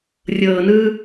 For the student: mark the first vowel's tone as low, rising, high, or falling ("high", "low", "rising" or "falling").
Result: low